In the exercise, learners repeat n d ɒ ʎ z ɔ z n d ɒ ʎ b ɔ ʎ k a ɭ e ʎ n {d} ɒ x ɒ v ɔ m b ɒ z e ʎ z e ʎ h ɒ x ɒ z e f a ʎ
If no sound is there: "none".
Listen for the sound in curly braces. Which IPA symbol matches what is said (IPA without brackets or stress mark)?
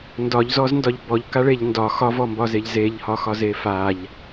d